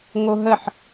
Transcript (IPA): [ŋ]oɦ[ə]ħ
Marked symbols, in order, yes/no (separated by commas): yes, yes